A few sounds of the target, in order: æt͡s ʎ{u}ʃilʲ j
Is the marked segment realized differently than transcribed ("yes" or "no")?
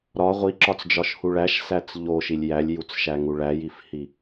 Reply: yes